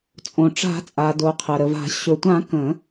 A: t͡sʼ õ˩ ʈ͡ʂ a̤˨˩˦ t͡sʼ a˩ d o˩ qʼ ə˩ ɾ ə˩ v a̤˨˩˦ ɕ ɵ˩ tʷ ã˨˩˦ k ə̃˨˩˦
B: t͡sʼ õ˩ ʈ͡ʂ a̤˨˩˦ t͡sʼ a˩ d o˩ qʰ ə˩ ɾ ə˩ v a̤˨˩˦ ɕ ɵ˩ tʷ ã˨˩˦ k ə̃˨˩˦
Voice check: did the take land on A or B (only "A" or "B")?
B